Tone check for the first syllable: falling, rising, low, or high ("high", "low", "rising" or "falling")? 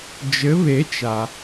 rising